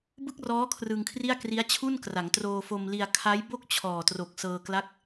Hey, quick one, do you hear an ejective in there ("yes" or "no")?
no